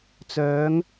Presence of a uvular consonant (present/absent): absent